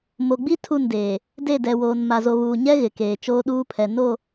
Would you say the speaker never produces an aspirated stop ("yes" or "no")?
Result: no